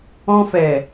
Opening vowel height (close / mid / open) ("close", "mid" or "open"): mid